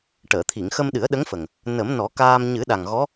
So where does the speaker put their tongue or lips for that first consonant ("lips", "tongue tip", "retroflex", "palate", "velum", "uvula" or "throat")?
retroflex